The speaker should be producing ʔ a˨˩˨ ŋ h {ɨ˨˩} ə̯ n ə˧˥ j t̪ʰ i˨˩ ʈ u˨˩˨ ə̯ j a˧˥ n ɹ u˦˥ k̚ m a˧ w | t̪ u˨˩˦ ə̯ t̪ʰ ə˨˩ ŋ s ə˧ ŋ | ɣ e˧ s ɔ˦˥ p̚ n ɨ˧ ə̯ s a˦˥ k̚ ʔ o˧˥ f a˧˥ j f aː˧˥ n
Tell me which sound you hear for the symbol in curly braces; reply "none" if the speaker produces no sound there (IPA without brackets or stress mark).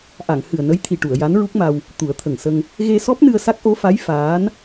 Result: ɨ˨˩